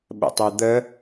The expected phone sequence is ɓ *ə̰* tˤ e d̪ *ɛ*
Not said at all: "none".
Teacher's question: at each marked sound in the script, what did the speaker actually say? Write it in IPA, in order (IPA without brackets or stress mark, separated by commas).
ə̰, ə